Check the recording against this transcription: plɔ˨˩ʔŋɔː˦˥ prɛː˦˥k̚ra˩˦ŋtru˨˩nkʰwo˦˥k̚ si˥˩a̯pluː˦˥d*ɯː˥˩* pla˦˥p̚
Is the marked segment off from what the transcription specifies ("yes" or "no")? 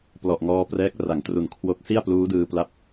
yes